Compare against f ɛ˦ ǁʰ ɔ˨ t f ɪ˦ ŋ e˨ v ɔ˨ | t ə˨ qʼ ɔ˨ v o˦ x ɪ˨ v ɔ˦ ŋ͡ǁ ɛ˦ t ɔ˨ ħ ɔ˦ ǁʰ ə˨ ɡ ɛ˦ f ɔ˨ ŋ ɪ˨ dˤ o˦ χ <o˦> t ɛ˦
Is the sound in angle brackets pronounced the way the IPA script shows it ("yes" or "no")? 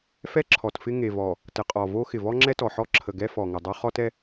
no